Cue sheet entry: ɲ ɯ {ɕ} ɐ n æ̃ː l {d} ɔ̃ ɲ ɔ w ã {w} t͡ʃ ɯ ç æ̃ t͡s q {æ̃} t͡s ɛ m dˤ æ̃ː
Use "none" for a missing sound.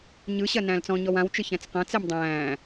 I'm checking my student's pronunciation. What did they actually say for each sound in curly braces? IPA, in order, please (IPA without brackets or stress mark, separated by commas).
ɕ, t͡s, w, ɐ̃